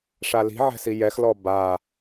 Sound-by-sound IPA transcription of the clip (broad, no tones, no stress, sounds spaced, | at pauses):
ʂ a l i̤ ʕ ɛ̤ s i j ɛ x l ɔ b a